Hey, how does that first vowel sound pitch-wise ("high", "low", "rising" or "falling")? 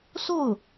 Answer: falling